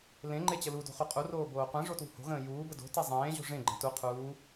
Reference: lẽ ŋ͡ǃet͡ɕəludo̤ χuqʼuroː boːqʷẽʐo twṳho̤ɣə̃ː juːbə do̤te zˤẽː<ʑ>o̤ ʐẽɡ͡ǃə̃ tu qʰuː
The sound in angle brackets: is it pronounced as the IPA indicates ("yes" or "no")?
yes